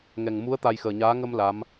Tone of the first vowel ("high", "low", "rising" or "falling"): low